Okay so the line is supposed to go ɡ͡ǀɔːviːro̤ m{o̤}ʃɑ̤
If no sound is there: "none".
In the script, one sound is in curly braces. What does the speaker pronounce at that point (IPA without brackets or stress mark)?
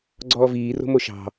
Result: o